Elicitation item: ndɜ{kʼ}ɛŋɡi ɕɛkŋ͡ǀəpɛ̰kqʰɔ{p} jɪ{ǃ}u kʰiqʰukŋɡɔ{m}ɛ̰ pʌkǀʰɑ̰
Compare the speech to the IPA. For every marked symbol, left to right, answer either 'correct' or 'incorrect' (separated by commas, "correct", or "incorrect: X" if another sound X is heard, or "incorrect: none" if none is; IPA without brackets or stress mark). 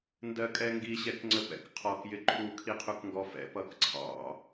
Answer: correct, incorrect: k, incorrect: ǃʰ, incorrect: f